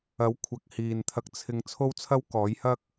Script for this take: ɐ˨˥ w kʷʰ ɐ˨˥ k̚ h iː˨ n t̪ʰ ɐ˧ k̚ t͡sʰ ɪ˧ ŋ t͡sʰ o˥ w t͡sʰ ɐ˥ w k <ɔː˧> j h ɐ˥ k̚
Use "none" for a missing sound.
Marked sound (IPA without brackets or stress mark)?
ɔː˨˥